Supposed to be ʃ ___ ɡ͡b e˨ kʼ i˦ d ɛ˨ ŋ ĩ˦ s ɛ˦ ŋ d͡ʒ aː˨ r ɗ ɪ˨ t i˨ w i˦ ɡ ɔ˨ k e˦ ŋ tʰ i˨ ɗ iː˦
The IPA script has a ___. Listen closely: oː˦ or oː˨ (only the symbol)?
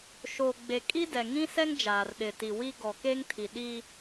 oː˨